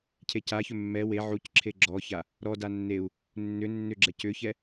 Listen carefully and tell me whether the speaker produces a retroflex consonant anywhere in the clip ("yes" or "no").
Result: no